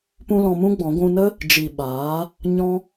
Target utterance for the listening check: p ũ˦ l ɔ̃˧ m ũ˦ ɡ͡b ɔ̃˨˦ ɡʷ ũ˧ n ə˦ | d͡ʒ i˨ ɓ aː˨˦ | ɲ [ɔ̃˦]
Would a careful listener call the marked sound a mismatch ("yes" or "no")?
no